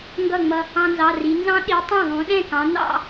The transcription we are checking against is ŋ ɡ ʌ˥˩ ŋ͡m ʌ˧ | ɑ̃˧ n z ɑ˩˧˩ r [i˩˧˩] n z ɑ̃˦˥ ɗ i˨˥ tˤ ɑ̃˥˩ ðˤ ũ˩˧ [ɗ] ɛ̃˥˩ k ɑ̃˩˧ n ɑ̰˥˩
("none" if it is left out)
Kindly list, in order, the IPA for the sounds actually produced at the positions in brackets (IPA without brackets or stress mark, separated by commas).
i˩˧, ɗ